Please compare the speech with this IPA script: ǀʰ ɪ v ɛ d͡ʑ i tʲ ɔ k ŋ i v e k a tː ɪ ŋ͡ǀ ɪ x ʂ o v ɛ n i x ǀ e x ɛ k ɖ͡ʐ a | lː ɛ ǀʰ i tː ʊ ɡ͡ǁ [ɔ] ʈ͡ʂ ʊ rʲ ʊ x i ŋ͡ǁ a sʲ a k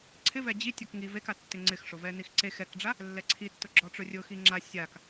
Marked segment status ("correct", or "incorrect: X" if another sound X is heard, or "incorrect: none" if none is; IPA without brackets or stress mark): correct